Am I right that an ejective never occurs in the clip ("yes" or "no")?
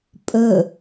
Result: no